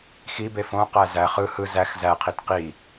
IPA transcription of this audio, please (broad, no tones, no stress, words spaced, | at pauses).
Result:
xibe fõqæ zæ χɯ hɯ zæx zæqʰit qi